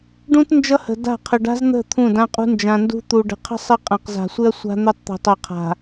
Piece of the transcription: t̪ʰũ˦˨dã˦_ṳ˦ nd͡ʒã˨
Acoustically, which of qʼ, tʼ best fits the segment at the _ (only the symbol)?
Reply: qʼ